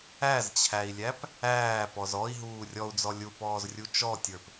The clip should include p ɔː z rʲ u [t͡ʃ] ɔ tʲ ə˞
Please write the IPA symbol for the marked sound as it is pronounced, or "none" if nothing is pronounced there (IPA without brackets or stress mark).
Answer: t͡ʃ